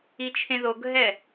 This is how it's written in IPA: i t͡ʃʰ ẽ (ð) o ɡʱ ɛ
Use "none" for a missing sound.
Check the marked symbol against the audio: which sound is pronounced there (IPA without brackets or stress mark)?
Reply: ð